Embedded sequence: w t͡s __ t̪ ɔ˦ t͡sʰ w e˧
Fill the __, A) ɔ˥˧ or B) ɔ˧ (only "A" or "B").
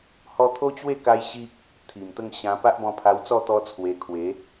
A